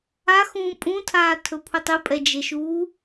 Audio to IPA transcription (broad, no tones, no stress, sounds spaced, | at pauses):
a x ũː pʼ ũ tʰ aː tʰ ɵ pʰ u tˤ ɨ pʼ ɛ d͡ʒ e ʃ uː